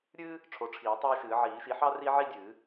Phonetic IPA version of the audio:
ɾʲɨː˥ | ʈ͡ʂʰo˨˦ʈ͡ʂʰiː˨˩˦ tˤaː˥ʃɨː˨˩˦ ʕiː˨˩˦ʃi˨˦ħɑ˥ ri˥ʕi˥dʲɨː˨˩˦

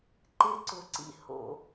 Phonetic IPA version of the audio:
ǃɪ˦ǀʊ˨ǀḭ˦ ho̰˦

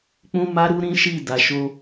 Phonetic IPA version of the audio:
k͡pũ˦ma˦ɾu˦ ɾĩ˦ ʃi˦˨ da˨ʃo˧

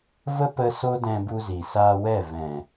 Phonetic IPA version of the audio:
və˦pə˧ so˦dɛ̃˧bu˧zi˨ saː˧wɛ˦˨ vɛ̃˨

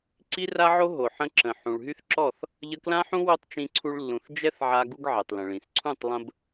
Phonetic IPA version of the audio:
ǀi˦ra˦ʕo˦ ɦo˨ħə̃˧ ǁə̃˨ ħũ˨ɭɦy˦θǁɔ˦˨θ | ʎə˧klã˦ħũ˦ wo˦tˤt͡ʃĩ˧ǀʰu˧ɭlːũ˨θ d͡ʒɛ˦θʕa˧ ɡu˦ɡʕɛ˨tˤlə̃˨ɭĩ˨s ǀʰũ˦˨tˤlˠə̃˧b

